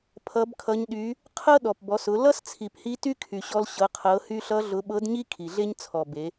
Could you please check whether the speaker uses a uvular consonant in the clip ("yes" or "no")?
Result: yes